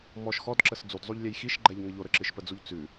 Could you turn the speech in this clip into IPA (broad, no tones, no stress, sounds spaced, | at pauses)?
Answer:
m ɔ ʃ x ɔ d ǁ ə s d͡z u d zˤ u ʎ lʲ ɛ j x i ʃ ɡ͡ǃ ɛ ʎ ŋ ə ʎ o ɾ ə ǁ ɨ ʃ p ə d͡z u ʎ t͡s ʉ